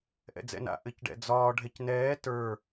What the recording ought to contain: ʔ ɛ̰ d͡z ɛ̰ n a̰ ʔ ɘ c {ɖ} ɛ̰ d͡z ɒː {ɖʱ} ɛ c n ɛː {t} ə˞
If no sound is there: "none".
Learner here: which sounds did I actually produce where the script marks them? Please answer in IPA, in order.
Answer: ɖ, ɖʱ, t

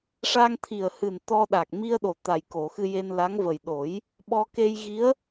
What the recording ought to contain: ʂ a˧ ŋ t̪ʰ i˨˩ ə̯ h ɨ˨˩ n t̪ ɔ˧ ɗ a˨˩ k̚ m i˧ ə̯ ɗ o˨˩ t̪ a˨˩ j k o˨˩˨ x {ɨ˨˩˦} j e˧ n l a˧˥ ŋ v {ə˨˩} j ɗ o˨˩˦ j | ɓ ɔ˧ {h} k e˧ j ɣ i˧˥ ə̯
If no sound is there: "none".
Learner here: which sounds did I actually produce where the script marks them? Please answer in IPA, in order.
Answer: ɨ˧, ə˨˩, none

